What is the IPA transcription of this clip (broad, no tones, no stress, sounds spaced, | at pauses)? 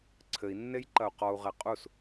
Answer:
ǀʰ ɘ i̯ nː e j ǃ ɐ u̯ q ɔ u̯ ʁ ɛ qʼ u s